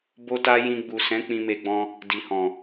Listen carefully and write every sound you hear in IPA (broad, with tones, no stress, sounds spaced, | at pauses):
b o˦ t a˦ j ĩ˧ ɡ͡b u˨ s ɛ̃˨˦ k͡p ĩ˧ m e˧ ɡ͡b ɔ̃˧ | d i˨ h ɔ̃˨